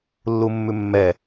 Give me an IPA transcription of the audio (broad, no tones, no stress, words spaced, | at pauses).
lːumːʉmːɛ